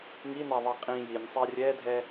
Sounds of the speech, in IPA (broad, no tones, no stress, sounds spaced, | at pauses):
ŋ i n a ðˤ i qʼ ĩ j i nʲ sˤ ɛ rʲ ɛ dʱ ɛ